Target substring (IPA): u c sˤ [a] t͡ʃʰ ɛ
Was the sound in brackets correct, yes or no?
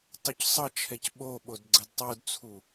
no